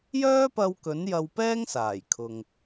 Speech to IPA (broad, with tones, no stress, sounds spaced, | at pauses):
j œː˥ p ɐ˧ w k ɵ˨˥ n j ɐ˧ w p ɛː˥ ŋ s aː˨˩ j kʰ ʊ˨ ŋ